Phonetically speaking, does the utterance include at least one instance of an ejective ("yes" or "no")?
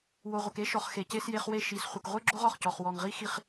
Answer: no